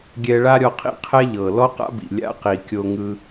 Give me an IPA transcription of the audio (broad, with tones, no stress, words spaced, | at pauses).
ɡʲɛ˧ɭa˥ɾʲɔ˧qʰḭ˥ qʰɛ˥ʎɤ˩ lɔ˥qa̰˥bḭ˩ lʲa̰˧qi˩kʲo˧ŋɯ˧